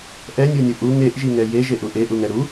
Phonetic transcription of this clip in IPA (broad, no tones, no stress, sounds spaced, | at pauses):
ʔ ɛ nʲ u nʲ u ʔ u ŋ e ʔ ʒ i ŋ ɛ j e ʒ e ʔ u ʔ e ʔ u ŋ ɛ ɾ u